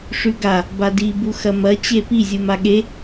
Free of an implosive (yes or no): no